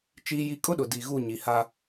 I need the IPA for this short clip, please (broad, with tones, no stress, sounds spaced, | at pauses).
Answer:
t͡ʃ iː˦ j i˦ kʼ ʊ˦ ɗ ʊ˨ d i˨ ɣ u˦˨ ɲ i˨ h a˦